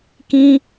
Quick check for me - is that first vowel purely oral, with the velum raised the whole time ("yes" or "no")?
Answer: no